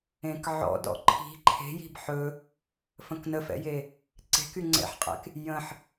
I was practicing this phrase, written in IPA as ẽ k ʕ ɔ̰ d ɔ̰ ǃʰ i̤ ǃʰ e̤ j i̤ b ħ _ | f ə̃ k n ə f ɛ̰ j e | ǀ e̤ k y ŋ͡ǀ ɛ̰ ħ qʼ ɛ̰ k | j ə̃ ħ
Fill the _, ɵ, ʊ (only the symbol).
ɵ